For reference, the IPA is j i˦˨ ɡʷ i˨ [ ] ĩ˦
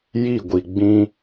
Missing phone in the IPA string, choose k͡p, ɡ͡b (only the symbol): ɡ͡b